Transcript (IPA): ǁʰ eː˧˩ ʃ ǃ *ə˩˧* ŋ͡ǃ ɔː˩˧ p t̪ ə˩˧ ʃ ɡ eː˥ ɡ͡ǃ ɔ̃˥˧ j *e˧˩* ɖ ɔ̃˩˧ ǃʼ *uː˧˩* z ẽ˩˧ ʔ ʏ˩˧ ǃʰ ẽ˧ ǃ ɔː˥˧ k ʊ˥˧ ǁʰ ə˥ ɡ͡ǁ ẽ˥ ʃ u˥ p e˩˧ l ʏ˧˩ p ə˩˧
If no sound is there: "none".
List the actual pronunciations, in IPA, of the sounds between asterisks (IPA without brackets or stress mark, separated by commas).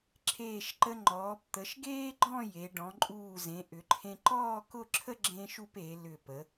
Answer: ə˧, e˩˧, uː˧˩